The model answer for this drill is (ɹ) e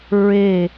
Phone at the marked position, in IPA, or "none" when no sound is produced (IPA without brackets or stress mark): ɹ